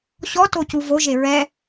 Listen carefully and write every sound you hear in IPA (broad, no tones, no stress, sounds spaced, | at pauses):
ɕ ɔ t o c u v o ʒ e ɹ ɛ